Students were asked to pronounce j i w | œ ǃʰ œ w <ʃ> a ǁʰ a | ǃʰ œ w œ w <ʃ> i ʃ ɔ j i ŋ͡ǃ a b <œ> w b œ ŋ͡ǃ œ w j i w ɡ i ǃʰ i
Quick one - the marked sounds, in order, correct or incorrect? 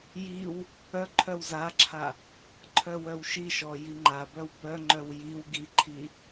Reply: incorrect, correct, correct

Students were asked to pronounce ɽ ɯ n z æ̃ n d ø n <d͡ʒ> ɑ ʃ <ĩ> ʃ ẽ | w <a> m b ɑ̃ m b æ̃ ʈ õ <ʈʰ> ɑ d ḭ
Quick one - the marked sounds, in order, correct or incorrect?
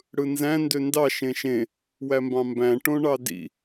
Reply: incorrect, incorrect, incorrect, incorrect

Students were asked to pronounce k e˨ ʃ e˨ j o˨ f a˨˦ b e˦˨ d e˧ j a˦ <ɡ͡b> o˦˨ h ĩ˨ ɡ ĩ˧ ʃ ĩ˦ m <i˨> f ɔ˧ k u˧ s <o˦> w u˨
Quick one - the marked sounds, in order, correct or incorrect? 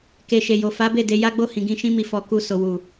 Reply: correct, incorrect, incorrect

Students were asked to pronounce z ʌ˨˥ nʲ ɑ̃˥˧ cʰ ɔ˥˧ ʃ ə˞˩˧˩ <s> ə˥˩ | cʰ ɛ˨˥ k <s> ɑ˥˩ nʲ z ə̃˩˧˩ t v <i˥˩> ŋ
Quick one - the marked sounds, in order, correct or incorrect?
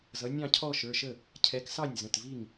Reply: incorrect, correct, correct

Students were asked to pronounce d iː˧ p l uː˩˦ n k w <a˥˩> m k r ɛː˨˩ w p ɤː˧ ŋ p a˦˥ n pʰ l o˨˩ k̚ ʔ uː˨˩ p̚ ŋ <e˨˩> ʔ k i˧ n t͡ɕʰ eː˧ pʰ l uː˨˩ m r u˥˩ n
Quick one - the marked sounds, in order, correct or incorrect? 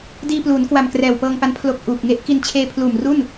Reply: incorrect, incorrect

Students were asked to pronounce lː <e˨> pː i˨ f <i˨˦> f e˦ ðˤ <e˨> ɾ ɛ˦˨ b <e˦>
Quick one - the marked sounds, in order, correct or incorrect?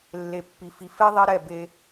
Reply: correct, incorrect, incorrect, correct

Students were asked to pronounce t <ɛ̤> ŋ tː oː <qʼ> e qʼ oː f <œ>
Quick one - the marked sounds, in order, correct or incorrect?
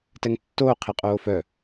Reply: incorrect, incorrect, correct

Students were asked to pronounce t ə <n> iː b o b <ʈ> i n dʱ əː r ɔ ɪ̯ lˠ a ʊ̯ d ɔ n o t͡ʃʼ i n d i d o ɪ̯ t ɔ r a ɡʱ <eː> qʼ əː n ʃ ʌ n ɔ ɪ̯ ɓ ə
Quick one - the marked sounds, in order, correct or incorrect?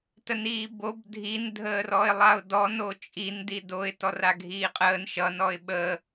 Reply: correct, incorrect, incorrect

